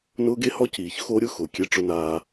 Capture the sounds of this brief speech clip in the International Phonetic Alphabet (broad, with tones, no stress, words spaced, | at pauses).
nʊː˦ɡe˦hɔ˦ciː˨ç xo˦ɾʲʊ˦xʊ˨ kʲe˦ʈ͡ʂʊ˦naː˦